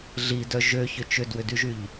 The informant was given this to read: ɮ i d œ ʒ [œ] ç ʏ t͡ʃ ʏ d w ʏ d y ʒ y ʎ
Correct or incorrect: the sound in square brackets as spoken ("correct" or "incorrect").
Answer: incorrect